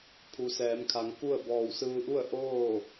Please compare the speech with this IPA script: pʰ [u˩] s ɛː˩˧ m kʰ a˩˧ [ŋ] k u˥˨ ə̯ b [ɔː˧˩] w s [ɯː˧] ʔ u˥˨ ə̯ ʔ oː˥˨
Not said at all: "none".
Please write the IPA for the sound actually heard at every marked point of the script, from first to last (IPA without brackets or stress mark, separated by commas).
u˩, ŋ, ɔː˧˩, ɯː˧